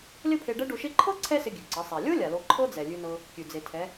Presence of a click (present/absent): present